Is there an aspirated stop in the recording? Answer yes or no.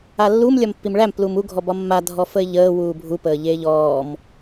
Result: no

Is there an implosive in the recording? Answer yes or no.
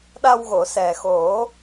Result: yes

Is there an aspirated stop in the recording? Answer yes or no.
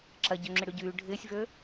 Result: no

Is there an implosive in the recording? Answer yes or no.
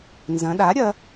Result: yes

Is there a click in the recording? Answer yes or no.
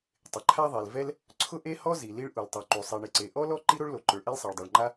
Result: yes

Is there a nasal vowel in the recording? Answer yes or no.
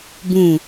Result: yes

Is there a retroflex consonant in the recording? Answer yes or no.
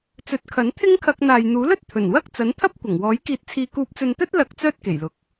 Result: no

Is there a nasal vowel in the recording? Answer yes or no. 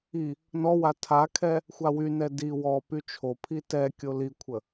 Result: no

